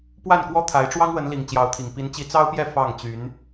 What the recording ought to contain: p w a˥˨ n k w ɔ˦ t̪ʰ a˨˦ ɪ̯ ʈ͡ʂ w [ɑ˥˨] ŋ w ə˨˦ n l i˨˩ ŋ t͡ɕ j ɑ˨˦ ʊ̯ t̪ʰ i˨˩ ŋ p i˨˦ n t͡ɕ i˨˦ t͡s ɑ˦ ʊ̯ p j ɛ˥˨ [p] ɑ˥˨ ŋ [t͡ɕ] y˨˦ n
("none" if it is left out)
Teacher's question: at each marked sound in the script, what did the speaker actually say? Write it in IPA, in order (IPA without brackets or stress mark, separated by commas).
ɑ˦, f, t͡ɕ